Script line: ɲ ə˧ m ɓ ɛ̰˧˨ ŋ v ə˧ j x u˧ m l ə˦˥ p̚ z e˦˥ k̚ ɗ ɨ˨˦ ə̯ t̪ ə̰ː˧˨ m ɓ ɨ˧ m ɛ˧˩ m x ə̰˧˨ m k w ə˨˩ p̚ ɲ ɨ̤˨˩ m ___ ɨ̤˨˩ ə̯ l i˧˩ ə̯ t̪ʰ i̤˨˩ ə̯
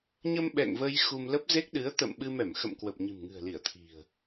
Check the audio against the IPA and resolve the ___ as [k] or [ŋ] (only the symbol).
ŋ